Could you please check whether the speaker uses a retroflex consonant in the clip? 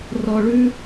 yes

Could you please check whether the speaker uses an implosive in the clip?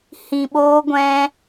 yes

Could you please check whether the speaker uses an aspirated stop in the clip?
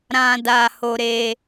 no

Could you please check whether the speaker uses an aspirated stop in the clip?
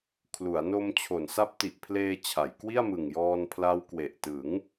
yes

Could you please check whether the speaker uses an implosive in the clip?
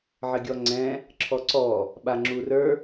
yes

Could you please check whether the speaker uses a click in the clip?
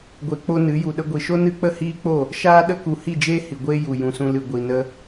no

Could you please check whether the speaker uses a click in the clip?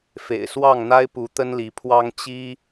no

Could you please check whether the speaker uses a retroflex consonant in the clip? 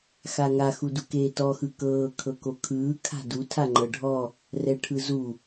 yes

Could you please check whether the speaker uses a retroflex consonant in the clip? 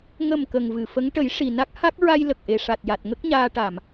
yes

